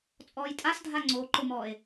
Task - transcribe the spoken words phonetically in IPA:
t͡sʼ ɔː j tʼ a s dʱ a ŋ͡ǀ o ǃ ʊ m ɔː e̯

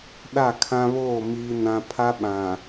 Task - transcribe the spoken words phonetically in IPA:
ɗ a˦˨ kʰ ã˦ β oː˦˨ m iː˦ n ã˦ pʰ a˦ ɓ ã˨

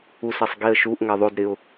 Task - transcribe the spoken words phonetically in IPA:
u s ɛ sˤ ɡ i ə̯ ʃ u ʔ ŋ ɛ ðˤ o d ɾ ɪ ʊ̯

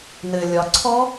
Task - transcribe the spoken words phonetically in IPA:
n ɘ lʲ ɒ ǀʰ ɔ

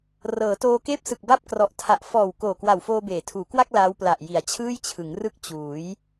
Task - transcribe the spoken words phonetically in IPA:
r ɤː˩˦ t oː˧ k eː˥˩ p̚ s ɯ˨˩ k̚ b a˥˩ p̚ k r ɔ˨˩ ʔ tʰ a˨˩ ʔ f ɔː˨˩ w k oː˨˩ k w a˨˩ w f oː˧ b eː˩˦ tʰ uː˩˦ k w a˥˩ k̚ l aː˦˥ w p l a˨˩ ʔ j i˩˦ a̯ t͡ɕʰ ɯː˥˩ j t͡ɕʰ ɯ˩˦ ŋ r ɯ˥˩ k̚ t͡ɕ uː˩˦ j

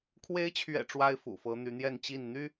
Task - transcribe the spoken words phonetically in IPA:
kʰ w e˧˥ ɪ̯ t͡ɕʰ ɥ ɛ̰˨˩ ʈ͡ʂ w a˥ ɪ̯ f ṵ˨˩ f ɤ˧˥ n̪ y˧˥ n̪ j ɛ˥˧ n t͡ɕ i˥˩ n n̪ y˥

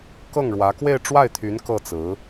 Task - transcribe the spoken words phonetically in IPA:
k ɤ˥˩ ŋ ɻ w ä˧˥ k w e˥˧ ɪ̯ ʈ͡ʂ w a˥˩ ɪ̯ t̪ʰ y˧˥ n k ɤ˥˩ t͡s ɹ̩˧˥

